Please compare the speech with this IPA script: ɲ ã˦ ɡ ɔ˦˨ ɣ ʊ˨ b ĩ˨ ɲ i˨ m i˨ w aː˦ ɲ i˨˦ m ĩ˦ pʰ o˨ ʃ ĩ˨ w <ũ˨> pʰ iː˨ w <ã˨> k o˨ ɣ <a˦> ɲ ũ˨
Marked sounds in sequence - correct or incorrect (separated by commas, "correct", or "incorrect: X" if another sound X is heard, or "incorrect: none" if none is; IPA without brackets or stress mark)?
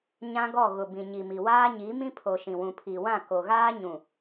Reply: correct, incorrect: ã˦˨, incorrect: aː˦